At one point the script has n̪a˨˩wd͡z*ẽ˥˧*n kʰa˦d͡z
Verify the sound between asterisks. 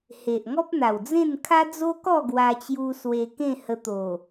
correct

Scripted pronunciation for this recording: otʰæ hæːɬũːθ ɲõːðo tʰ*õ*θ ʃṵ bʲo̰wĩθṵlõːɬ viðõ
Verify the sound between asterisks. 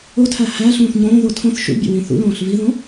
correct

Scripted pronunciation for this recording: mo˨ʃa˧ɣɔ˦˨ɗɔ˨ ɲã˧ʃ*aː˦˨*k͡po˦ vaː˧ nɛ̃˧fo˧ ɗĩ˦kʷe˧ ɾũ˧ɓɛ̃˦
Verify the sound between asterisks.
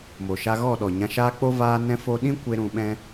incorrect: aː˦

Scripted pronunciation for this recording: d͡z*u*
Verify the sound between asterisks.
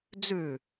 incorrect: ʉ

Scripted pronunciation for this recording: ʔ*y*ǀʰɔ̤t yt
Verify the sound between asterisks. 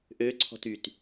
incorrect: ø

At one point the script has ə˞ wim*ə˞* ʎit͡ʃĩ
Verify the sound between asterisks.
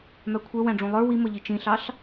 incorrect: ʌ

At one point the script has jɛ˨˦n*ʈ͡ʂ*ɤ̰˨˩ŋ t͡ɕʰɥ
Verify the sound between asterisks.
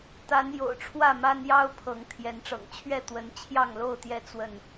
correct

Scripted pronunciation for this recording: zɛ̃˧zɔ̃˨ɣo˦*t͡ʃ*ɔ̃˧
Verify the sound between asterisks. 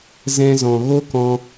incorrect: k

